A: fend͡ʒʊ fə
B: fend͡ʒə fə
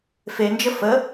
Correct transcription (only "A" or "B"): B